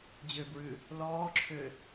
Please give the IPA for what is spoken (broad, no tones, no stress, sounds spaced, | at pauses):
d͡ʑ ø b ɹ ʉ | l ɔː ǁʰ ø